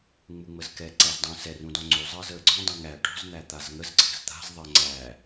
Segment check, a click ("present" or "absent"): present